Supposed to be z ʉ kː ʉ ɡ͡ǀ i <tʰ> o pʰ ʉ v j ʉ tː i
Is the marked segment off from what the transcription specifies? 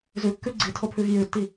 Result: no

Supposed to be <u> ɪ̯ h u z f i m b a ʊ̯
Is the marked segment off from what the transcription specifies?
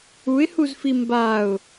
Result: no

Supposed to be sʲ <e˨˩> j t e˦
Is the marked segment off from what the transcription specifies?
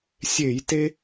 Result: yes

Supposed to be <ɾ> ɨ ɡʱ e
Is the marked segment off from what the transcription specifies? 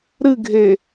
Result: no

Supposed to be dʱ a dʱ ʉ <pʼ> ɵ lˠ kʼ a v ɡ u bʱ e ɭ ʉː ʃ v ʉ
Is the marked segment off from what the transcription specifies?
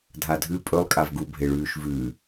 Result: no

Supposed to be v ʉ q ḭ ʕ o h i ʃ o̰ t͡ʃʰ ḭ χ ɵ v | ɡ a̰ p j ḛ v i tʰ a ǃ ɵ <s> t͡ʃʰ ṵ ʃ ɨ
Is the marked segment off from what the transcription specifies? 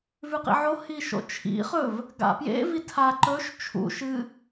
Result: yes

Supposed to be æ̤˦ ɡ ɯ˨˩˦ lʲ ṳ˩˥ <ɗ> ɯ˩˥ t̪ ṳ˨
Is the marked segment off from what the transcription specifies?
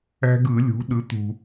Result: no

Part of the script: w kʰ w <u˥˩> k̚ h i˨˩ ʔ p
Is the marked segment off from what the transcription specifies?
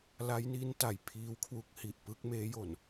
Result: yes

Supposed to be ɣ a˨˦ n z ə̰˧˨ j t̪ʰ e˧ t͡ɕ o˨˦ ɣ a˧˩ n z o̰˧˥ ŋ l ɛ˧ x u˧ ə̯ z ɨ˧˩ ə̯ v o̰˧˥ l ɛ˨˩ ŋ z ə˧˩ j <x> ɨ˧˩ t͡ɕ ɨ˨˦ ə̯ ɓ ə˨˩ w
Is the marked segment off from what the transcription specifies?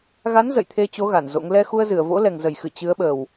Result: no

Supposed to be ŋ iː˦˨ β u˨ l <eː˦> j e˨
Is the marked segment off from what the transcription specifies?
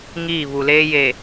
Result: no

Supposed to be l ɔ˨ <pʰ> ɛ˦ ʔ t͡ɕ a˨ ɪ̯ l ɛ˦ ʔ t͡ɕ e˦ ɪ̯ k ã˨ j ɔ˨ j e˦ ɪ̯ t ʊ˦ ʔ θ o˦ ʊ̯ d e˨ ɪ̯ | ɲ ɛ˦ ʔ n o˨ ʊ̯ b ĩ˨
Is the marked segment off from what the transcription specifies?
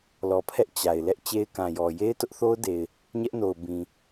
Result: no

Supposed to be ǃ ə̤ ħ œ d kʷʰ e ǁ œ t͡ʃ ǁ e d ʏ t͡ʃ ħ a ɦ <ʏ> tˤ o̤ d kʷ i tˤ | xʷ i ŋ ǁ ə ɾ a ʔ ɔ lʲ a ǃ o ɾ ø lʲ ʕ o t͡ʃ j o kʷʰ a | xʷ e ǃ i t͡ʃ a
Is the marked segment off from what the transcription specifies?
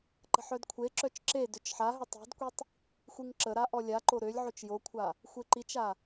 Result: no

